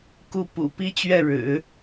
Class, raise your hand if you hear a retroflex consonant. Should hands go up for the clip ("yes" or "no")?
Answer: yes